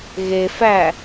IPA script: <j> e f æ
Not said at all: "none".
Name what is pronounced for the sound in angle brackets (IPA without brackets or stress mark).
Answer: ɣ